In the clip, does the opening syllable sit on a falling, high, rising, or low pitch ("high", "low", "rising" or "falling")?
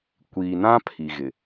low